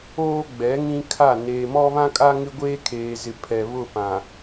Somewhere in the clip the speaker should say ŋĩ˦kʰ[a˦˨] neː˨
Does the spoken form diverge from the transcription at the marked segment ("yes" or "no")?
no